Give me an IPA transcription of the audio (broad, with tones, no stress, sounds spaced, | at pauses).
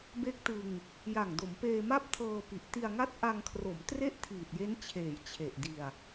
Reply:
b e˦˥ k̚ t ɯ˧ ŋ | j a˨˩ ŋ d o˩˦ m p eː˧ m a˥˩ p̚ tʰ ɤː˧ p i˨˩ ʔ t i˧ a̯ ŋ a˦˥ t̚ ʔ a˧ ŋ kʰ r o˩˦ m t r e˥˩ ʔ tʰ iː˨˩ t̚ j e˦˥ n t͡ɕʰ eː˩˦ j t͡ɕʰ e˨˩ ʔ d i˧ a̯